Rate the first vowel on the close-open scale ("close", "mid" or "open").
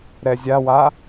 mid